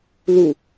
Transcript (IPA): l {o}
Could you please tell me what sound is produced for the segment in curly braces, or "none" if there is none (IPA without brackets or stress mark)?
u